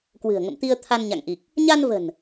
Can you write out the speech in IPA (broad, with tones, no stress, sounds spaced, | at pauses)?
k w ɨ̤˨˩ ə̯ ŋ ə̰˧˨ m t̪ i˧ ə̯ t̪ʰ a˧ n ɲ a̰˧˨ ŋ ʔ i˨˩ k̚ | ɲ a˧ n v ə̤˨˩ n